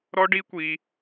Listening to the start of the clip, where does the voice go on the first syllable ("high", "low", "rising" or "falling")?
high